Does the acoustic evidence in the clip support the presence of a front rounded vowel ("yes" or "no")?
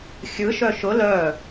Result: yes